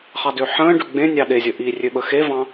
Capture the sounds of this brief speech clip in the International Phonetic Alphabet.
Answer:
χɑdøħə̃ːɖø ɡ͡bẽ nʲɑɗezʲə ʔirʲø ɓəxevɑ̃

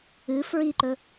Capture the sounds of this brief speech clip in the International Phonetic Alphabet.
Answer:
ɨ fɹiǃɵ

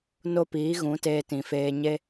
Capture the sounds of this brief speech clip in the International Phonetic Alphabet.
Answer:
no˦piː˨˦ɣũ˨˦teː˧ tĩ˨feː˧ ɲe˦

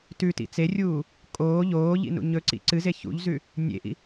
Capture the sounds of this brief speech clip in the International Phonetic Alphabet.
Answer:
tʉ tḭt͡serʲuː | kʼoː ʎoː ʎḭnṵɲɵǀḭ ǀɨze çṵʎzʉ | nʲḛʔḭ

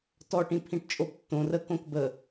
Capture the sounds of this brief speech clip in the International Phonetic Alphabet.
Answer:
tɔʈĩpʰĩʈ t͡ʃʼobtːõ rə kõkbə

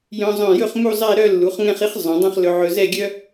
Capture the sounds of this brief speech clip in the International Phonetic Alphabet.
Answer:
jœ̃˧zˤœ̃˧˩jɵ˥˧χ mu˥˧zˤɛ˥˧ ɾœ˥˧lːu˩˧χ ŋɛ̃˥˧χi˥χ zˤœ̃˩˧dˤœ̃˥˧χ lɵ˧ʕɵ˧ zɛ˥˧ɡʲœ˥

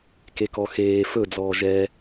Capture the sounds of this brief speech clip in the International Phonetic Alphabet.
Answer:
kekɔxeː fɵd͡zɔː ʒɛ

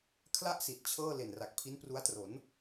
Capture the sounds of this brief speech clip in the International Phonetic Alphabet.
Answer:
kʰla˥˩ʔsi˨˩t̚ t͡ɕʰɤː˥˩ le˨˩nra˨˩k̚ pʰi˦˥n pru˦˥a̯tro˩˦n

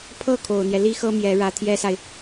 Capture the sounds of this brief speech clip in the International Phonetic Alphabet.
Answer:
pʰɤ˥˩kʰo˨˩ʊ̯n̪jɛ˦ li˥xɤ˥ mjɛ˧˥ ɻä˧˥t̪ʰjɛ˥sa˨ɪ̯

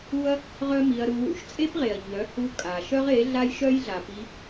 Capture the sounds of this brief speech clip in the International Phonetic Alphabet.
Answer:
u˦ɐ̯ | ʁœ˦mi˧ɐ̯ɾu˧wṵ˧ʃ t͡sʼe˦pʁe˨ɐ̯ ɲœ˨˦hu˧ kʼa˨ ʃœ˦ʁe˨˦ ɮa˦jʃœ˦jɮa˨pi˧

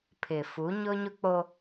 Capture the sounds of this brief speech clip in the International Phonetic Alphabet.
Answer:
pʰɪ˨ fu˨˦ɲʊ˦ɲʊ˦k͡po˦

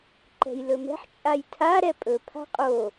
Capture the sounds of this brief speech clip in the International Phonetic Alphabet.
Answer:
ǃɛ̤jlɵmɛ̤ħ t͡ʃʼajtʰa ɾɛpʼɵ pʰa̤qʼo

